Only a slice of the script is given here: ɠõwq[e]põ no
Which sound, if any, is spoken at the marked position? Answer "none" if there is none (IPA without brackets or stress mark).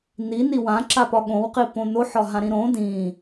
i